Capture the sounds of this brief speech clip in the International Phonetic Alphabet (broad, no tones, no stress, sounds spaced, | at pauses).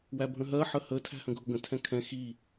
w æ bʱ ə̃ ɦ ɜ ħ ə h ə tʰ æ̤ h ə̃ ɡʱ ʊ ɡ ə̃ tʰ ɛ̃ kʰ ɛ̃ x i